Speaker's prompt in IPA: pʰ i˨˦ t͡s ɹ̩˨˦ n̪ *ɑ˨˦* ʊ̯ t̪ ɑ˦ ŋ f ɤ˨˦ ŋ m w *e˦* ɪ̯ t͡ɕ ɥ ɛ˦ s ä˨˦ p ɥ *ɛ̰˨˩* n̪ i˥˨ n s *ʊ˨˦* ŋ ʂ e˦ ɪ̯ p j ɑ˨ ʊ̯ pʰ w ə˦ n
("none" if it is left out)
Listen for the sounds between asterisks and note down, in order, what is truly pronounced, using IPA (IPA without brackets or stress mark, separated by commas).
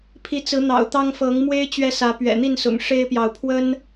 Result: ɑ̰˨˩, e˦, ɛ̰˨˩, ʊ̰˨˩